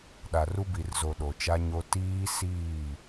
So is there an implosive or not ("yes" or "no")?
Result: yes